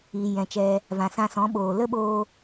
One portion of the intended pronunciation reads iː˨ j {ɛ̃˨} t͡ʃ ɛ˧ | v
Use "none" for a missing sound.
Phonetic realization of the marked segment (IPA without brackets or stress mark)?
ɛ̃˨